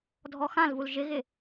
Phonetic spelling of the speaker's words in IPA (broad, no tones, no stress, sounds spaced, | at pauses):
dʱ ɔ x ã l v u l ʒ ɪ ɣ ɪ